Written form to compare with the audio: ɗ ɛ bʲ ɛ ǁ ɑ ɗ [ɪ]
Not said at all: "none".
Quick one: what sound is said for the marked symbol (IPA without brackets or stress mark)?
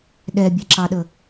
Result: ə